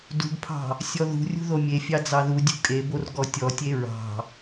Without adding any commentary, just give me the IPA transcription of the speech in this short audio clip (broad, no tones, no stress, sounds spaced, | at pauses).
d ṳ ɡ pʰ ɑ̤ | sʲ ɔ ð ṳ rʲ ṳ ð o mʲ e fʲ ɑ d͡z ɑ ð u dʲ ṳ kʼ e b o r ɡ ɔ tʲ ɔ tʲ e ɹ ɑ̤